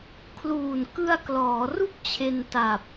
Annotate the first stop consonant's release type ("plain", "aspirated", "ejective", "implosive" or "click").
aspirated